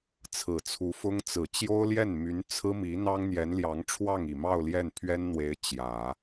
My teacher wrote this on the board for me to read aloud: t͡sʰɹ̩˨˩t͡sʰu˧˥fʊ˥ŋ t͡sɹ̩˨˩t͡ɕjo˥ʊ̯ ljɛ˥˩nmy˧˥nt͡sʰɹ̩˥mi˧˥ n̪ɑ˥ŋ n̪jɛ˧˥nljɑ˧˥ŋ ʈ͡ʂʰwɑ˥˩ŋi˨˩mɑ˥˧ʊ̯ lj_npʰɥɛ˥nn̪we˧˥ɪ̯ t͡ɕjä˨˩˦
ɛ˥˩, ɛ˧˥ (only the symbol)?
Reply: ɛ˥˩